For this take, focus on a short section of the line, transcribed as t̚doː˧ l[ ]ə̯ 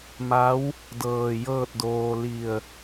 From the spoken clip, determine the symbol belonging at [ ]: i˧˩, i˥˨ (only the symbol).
i˧˩